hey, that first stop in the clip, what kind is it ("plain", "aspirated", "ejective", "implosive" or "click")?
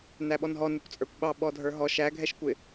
implosive